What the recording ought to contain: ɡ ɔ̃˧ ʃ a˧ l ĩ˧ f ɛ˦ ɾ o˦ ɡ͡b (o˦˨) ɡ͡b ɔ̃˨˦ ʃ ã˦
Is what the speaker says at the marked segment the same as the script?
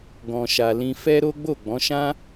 yes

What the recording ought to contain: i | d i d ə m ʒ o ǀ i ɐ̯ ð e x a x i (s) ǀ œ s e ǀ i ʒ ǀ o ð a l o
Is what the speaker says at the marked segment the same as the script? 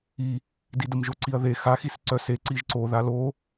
yes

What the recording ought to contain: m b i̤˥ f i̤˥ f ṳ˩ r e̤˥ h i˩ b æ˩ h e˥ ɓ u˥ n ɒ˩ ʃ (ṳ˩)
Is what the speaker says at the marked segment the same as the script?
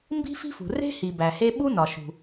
yes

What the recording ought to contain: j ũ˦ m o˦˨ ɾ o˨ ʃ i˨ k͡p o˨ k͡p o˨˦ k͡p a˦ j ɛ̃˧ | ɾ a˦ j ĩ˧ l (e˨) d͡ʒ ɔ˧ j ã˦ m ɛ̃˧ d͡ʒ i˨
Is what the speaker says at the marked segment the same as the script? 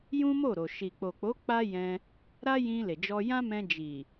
yes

